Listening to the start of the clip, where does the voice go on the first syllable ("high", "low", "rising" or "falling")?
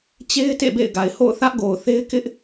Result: high